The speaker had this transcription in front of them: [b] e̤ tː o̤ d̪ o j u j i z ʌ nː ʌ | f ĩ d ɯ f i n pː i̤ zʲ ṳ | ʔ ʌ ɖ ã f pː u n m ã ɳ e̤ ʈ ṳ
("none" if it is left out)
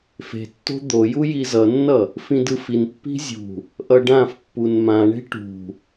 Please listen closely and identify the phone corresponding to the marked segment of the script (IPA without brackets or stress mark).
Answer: f